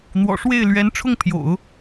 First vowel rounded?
yes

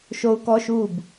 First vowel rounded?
yes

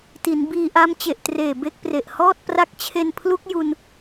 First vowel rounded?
no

